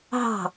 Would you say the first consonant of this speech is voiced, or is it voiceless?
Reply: voiced